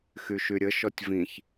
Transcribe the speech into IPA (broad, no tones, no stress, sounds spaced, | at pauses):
x y ʃ y ɾʲ ə ʃ ɔ tʲ v ĩ ç